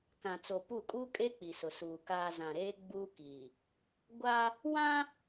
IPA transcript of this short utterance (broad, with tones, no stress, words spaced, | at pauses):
kã˨t͡so˨pu˦˨ kʼuː˦kʼeː˦ k͡pi˨sʊ˨suː˨ kaː˨ zã˨ɾeː˦ ɡ͡buː˦kiː˨ | ɡʷa˦ | wã˦